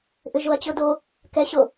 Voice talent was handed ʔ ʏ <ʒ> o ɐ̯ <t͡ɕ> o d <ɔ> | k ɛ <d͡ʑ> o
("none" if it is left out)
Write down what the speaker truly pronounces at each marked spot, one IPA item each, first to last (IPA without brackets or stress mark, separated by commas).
ʒ, t͡ɕ, o, ɕ